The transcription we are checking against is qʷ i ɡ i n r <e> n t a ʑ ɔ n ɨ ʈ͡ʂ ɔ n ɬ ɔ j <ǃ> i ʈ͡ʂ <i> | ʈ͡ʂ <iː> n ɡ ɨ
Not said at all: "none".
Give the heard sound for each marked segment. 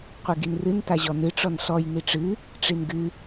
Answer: ɨ, n, ɨ, i

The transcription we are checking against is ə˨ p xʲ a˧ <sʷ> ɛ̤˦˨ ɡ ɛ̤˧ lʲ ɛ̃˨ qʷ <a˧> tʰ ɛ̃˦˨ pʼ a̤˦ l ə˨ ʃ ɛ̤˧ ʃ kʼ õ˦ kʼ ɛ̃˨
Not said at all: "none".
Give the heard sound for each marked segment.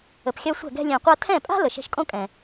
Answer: sʷ, a˧

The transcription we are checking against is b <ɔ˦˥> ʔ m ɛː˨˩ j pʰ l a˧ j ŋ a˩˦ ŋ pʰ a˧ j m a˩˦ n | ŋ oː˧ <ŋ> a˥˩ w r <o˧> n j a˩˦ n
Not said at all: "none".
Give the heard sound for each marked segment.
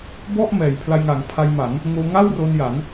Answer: ɔ˥˩, ŋ, o˧

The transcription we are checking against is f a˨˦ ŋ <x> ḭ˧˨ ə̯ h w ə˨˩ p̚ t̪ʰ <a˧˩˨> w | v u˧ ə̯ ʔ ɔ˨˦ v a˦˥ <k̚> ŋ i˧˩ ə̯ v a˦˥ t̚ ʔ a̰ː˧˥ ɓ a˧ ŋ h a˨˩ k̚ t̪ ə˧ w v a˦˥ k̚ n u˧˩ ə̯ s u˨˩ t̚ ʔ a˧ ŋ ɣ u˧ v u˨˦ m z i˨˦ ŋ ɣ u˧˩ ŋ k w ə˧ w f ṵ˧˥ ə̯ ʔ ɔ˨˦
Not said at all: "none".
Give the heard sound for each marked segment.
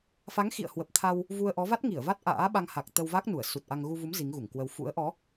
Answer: x, a˧, t̚

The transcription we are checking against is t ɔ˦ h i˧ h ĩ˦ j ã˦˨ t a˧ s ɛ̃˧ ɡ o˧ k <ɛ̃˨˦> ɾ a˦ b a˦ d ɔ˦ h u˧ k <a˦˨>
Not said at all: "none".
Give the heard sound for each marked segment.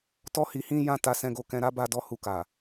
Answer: ɛ̃˧, a˨

